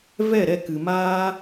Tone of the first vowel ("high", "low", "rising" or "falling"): falling